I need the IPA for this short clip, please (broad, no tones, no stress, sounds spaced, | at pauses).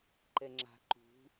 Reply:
ǃ ɛ ŋ͡ǁ a̤ ǃ ṳ